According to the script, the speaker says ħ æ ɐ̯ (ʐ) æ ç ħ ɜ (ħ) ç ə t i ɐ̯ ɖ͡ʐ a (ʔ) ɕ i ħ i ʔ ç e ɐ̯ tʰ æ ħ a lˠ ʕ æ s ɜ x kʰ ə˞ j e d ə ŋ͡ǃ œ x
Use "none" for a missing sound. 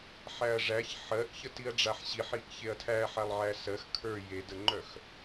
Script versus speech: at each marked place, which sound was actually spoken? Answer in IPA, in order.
ʐ, ʔ, ħ

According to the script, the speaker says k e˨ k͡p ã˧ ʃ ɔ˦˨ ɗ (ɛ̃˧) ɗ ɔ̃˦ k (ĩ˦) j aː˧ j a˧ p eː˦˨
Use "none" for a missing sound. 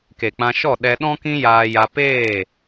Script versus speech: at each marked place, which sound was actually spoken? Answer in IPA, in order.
ɛ˧, ĩ˦

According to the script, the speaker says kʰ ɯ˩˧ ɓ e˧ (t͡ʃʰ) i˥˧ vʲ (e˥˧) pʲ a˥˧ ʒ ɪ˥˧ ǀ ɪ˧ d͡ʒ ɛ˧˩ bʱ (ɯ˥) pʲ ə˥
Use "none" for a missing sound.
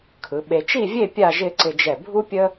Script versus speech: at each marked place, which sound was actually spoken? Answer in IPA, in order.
t͡ʃ, e˥˧, u˥

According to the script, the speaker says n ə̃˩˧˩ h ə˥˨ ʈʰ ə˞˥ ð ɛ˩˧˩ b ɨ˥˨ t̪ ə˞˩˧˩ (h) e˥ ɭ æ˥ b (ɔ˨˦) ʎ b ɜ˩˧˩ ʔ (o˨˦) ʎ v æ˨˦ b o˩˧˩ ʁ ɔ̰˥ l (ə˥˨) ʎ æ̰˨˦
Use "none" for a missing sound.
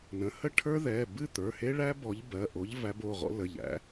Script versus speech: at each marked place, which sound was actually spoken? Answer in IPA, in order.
h, ɔ˨˦, o˨˦, ə˩˧˩

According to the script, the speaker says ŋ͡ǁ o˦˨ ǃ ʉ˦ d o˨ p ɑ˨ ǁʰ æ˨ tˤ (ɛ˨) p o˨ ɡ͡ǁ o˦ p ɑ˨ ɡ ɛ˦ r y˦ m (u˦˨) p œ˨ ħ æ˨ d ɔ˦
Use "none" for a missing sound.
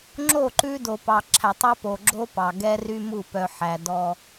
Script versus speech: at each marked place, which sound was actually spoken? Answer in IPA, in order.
ɛ˦, u˦˨

